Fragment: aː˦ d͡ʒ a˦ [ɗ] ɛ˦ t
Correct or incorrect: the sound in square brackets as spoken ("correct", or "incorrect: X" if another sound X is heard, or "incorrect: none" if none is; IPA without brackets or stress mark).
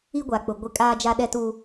correct